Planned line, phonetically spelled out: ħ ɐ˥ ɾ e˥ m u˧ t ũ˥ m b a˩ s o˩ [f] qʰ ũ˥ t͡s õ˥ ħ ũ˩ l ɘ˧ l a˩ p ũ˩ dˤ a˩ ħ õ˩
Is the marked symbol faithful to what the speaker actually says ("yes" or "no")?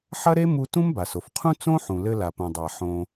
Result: yes